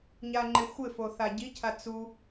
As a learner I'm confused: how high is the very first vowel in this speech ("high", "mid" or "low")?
low